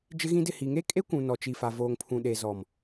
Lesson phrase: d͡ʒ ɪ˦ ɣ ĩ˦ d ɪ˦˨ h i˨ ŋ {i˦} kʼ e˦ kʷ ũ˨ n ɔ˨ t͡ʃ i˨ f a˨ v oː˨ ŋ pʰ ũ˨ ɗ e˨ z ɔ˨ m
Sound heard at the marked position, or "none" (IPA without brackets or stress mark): e˦